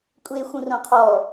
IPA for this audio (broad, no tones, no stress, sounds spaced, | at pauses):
kʷʼ eː xʷ ũ r õ qʰ ɔ